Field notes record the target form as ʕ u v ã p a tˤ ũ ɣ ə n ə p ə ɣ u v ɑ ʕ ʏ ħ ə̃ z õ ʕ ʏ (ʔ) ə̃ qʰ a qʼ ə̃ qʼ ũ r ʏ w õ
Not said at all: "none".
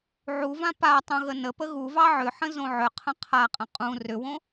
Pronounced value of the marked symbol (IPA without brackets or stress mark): qʰ